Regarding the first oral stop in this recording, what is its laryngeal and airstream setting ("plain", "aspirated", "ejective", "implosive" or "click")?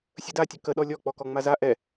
plain